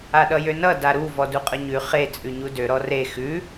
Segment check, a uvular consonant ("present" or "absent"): present